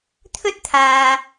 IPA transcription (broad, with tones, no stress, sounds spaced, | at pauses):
t̪ʰ ɵ˥ t̚ t̪ʰ aː˨